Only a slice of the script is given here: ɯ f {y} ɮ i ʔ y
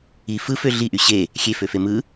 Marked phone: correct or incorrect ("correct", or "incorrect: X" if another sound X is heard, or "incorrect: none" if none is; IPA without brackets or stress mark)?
incorrect: ø